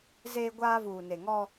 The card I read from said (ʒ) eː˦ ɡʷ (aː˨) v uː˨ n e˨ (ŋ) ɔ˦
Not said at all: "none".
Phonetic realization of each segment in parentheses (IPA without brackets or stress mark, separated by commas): z, aː˦, ŋ